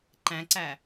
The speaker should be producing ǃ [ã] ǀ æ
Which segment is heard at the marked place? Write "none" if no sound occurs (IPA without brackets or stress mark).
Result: æ̃